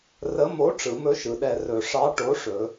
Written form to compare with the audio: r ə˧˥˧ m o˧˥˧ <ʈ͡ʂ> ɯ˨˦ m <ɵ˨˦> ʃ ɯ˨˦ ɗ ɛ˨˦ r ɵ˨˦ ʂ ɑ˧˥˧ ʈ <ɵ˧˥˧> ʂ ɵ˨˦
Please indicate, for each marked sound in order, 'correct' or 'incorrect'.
correct, incorrect: ɵ˧˥˧, incorrect: o˧˥˧

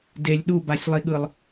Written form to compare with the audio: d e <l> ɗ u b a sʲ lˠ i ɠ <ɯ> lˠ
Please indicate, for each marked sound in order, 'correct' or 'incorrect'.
incorrect: lʲ, correct

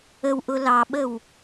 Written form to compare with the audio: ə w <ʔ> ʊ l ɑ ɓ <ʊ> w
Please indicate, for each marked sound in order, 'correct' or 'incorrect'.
correct, incorrect: ə

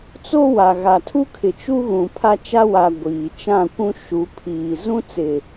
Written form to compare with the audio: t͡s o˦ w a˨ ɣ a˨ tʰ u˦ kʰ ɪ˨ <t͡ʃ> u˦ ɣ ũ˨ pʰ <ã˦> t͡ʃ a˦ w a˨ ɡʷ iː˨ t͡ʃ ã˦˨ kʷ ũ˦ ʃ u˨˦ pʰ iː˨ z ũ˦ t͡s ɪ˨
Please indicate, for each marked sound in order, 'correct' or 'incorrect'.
correct, incorrect: a˦

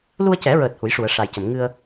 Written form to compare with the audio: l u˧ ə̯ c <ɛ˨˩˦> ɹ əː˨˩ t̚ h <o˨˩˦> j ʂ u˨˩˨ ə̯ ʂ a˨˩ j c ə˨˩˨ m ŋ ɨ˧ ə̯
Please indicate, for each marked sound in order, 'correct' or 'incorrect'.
correct, incorrect: u˨˩˦

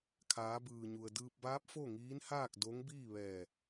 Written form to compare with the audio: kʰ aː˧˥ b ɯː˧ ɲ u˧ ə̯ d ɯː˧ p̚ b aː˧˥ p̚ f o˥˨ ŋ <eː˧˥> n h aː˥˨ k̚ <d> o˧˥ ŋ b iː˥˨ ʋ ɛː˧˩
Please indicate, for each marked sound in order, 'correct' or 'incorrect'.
incorrect: iː˧˥, correct

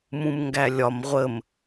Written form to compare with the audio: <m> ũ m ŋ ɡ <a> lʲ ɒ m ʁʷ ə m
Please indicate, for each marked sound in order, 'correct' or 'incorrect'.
correct, incorrect: æ

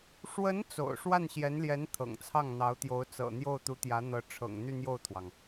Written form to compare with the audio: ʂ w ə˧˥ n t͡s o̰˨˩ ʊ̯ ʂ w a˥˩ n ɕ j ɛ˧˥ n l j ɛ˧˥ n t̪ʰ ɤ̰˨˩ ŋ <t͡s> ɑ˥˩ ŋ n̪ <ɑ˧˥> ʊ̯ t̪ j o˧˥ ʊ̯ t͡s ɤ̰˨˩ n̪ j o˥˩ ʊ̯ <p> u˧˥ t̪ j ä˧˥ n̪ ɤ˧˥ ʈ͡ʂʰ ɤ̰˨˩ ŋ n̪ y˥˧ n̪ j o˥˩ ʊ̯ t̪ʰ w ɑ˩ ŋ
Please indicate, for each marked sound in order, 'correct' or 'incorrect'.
incorrect: t͡sʰ, correct, incorrect: t̪

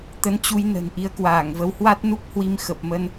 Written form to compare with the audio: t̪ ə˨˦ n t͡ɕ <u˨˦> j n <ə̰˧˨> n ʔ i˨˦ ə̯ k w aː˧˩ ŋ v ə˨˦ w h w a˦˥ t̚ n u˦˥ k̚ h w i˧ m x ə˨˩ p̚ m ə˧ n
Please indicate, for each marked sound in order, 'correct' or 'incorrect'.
correct, incorrect: ə̤˨˩

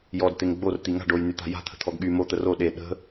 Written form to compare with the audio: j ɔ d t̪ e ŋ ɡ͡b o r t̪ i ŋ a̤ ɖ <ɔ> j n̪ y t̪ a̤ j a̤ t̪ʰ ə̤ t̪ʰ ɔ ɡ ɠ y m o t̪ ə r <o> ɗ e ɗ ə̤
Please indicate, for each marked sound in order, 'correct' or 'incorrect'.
incorrect: o, correct

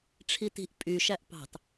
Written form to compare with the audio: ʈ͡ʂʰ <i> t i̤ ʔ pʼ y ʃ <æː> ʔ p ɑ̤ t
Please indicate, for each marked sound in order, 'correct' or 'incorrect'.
correct, incorrect: æ

